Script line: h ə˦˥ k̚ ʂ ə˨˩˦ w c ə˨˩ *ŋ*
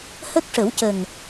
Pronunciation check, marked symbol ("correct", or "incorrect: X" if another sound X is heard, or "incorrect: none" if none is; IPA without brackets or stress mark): correct